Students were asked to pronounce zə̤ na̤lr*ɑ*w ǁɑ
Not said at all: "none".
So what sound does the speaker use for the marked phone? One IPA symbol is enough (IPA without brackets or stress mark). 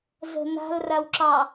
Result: a